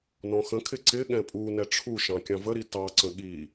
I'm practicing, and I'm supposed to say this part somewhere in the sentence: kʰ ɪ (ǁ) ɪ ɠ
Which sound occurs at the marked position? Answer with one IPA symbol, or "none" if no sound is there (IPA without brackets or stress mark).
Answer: ǀ